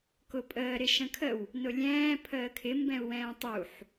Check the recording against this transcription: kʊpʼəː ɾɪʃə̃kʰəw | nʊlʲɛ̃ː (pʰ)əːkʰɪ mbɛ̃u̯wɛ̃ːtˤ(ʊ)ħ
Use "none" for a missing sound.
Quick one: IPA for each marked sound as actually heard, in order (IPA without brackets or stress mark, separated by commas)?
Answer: pʰ, u